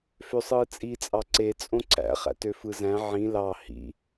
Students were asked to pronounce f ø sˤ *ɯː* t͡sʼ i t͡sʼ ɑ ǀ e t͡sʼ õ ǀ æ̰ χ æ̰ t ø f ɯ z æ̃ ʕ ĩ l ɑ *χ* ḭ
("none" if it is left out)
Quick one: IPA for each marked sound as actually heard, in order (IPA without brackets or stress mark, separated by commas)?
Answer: ɯː, h